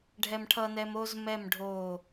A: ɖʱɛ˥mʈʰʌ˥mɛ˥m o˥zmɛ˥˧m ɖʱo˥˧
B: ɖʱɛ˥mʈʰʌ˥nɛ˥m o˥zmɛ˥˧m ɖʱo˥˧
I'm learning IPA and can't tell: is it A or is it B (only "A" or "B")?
B